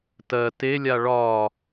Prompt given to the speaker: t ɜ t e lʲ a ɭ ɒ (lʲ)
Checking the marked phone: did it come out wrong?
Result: yes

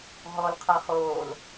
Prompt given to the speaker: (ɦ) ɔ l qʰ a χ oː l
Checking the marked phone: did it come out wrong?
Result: no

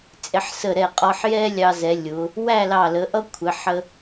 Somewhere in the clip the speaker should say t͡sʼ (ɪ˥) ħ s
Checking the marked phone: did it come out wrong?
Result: yes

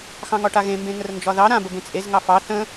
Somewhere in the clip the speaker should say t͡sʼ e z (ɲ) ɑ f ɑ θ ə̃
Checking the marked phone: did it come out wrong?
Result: yes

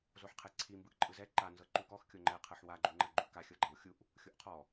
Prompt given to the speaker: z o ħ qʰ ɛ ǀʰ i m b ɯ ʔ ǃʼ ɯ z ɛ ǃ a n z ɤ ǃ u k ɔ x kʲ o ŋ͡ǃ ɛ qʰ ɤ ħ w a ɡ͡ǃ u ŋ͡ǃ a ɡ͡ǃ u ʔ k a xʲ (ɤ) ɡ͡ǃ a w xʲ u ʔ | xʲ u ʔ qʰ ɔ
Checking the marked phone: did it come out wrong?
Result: no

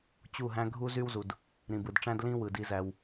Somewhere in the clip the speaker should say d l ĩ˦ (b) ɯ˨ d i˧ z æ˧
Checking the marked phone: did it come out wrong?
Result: yes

